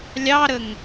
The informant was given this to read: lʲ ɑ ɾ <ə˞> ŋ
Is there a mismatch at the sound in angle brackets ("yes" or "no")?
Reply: yes